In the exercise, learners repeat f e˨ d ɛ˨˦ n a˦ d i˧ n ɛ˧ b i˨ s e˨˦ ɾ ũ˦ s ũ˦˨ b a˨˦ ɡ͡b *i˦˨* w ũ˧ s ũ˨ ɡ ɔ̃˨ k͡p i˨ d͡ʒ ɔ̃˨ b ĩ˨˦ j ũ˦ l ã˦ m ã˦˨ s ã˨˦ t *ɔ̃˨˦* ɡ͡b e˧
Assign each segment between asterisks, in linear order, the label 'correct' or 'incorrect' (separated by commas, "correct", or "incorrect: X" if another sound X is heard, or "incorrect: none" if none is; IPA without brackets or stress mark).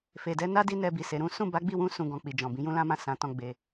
correct, incorrect: ɔ̃˧